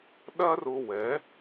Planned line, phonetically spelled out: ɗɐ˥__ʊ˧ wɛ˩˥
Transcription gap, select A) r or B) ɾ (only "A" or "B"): A